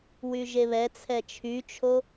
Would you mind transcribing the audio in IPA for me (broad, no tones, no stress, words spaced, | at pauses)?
wyʒeβɛ t͡sʰɛt͡ʃʰyt͡ʃʰo